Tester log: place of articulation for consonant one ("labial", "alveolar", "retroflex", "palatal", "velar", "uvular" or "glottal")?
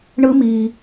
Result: retroflex